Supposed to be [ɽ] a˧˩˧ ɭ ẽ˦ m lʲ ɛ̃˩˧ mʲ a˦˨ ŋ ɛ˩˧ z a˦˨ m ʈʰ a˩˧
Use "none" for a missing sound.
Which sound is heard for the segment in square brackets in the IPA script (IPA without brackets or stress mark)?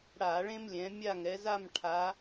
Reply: ɽ